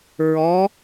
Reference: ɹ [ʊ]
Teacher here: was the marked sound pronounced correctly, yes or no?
no